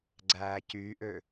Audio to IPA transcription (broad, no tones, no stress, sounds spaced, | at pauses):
ɡ͡ǀ æː c yː ʔ ø